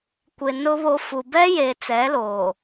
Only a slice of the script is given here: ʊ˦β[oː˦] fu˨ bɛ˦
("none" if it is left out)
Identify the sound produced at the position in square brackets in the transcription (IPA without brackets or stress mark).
o˦